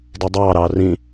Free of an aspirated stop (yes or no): yes